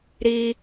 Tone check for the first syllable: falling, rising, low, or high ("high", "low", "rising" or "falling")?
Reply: high